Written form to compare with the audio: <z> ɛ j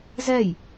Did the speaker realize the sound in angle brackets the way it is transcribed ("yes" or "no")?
yes